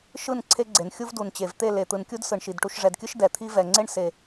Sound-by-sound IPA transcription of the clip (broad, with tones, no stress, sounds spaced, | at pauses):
ʃ ɯ˦˨ n ǀʰ e˦ ɡ͡ǀ e˨ n xʲ u˦ v d u˨ n t͡ɕ e˨ v t̪ e˦˨ l e˨ t̪ ɯ˨ n kʲ u˦ d s ɯ˨ ɳ ʃ i˨ d ʈ u˨ ʃ ʐ ɛ˨ d kʲ ɯ˦ ʃ d ɛ˨ t̪ʰ i˦ v ɛ˨ ŋ͡ǀ e˦ ɳ s e˨